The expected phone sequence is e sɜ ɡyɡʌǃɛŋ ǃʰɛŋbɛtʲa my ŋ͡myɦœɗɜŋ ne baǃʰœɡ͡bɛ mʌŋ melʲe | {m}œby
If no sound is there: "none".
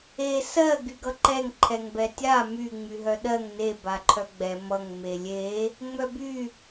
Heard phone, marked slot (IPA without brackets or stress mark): ŋ͡m